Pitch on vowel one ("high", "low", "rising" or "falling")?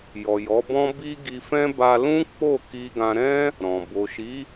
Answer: low